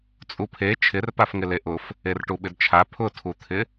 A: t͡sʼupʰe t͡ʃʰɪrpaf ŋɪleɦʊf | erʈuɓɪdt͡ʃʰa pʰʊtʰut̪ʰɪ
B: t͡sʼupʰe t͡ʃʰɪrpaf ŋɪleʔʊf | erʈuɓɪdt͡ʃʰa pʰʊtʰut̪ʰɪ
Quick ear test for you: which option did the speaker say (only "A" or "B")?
B